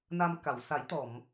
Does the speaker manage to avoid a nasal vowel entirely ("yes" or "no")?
yes